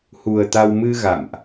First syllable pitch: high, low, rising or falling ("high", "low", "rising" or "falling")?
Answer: low